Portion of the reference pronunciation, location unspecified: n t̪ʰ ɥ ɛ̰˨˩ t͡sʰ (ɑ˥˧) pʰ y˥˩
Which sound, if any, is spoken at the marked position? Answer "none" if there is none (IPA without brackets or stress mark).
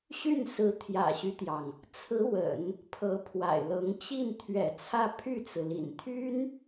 ä˥˧